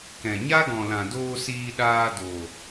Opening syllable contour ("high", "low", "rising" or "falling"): low